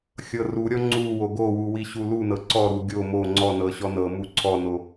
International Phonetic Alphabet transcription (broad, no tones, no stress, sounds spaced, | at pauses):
xʲ ɤ r u ɾʲ ɔ ŋ͡ǀ u w o ɡ o w u w i ɕ u l u n ɤ ǀ ɔ ɾ u ɡʲ o m o ŋ͡ǀ ɔ n ɤ ɕ ɔ n ɤ m u ǀʰ ɔ n o